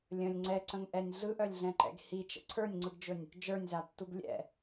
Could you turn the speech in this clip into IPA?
lʲ ə̃ lʲ ŋ͡ǀ ɛ ǀ ə̃ ŋ ʔ ɛ nʲ ɮ ɯ ʔ œ lʲ ɮ ɛ̃ ǃ ɛ̰ ɡ h i t͡ʃ ə̰ ǀʰ ə˞ nʲ ŋ͡ǀ ɯ ɡ d͡ʒ ɵ nʲ | d͡ʒ ə˞ nʲ z a tː u ɡ lʲ ɛ̰

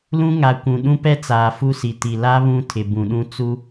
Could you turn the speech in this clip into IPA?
l ũ˦ ŋ a˨ kʷ ũ˨ ɗ ũ˦ p ɛ˦ t͡s aː˨ f u˦ s i˨ t i˨ l a˦ β ũ˦ tʰ ɪ˨ b ũ˨ ɗ ũ˦ t͡s u˦

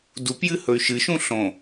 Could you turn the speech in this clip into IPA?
d u p j ɨ h ɵ y̯ ʃ ɨ ʃ ũ ɬ õ

